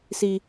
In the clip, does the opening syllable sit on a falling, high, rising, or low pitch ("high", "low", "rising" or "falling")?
high